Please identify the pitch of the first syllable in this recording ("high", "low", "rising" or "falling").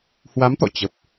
rising